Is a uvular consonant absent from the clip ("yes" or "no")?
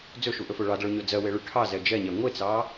yes